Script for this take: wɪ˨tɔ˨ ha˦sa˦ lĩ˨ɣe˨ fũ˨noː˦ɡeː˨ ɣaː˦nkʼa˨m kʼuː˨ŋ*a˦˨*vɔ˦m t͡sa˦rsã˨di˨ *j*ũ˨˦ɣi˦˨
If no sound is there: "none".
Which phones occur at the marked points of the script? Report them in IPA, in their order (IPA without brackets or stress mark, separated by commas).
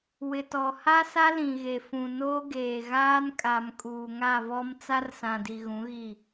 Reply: a˦˨, ɣ